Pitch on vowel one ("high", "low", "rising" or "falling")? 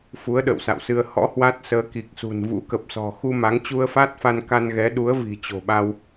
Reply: rising